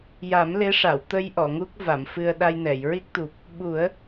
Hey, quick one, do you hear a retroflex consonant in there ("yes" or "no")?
yes